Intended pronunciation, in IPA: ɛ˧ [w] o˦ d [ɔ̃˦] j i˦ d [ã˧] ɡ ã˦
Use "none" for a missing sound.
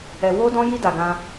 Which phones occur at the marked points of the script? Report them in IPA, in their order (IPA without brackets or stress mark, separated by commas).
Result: w, ɔ̃˦, a˧